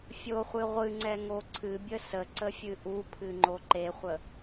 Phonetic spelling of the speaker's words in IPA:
fʲoχʷɨ ʁʷɨŋ͡ǀɛŋo ǀʰɨbʲə səǀəfʲɨ ʔupʰɨŋ͡ǃo ǃeχʷə

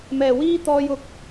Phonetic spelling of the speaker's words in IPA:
mɛː˨˩wiː˥t̪ɔː˧jʊ˨˥k̚

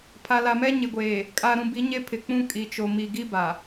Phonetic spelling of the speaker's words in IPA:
pʰa˨la˨mɛ˦ ɲɪ˨ɡʷeː˨ | kʼa˨ɾũ˨bi˨˦ ɲe˦pʰɪ˨k͡pũ˦ kʼi˨t͡ʃo˨ mi˨ɡi˦ba˨

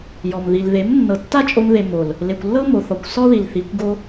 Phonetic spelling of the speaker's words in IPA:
jɔ˨m ði˨lðe˨˦m nːɤ˨tːa˦t͡ʃʼo˧m ðe˨ mo˨l | le˨kʷlːɤ˦mo˨ θɔ˨kʷsɔ˦ði˨l θi˨˦kʷɡo˦

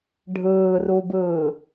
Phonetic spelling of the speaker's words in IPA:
ɖʱɯːrubɯː

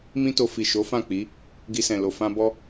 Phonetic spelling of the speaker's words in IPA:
mĩ˦to˧ fi˨ʃo˨˦ fã˦˨k͡pi˨˦ | ɡi˧sɛ̃˨lo˨ fã˧bɔ˦

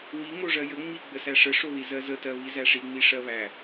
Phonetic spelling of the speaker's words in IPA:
wi ŋoʐɜjə ŋ͡miɡ͡bəsæ ʂəʂoði zɜzətɜ βizæʂiŋ͡mi ʂɜβæ

